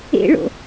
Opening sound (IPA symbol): ḛ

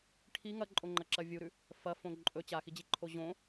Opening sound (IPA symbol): ʈʰ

